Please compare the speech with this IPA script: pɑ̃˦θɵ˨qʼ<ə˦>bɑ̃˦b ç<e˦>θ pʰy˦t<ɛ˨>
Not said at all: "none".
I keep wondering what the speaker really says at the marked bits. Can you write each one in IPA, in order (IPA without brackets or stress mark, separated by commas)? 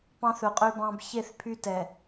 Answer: ø˦, e˦˨, ɛ˨